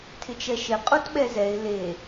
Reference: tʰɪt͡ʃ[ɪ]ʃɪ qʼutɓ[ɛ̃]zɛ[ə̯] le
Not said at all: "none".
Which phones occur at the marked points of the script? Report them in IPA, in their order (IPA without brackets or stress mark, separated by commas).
ɛ, ɛ, ɪ̯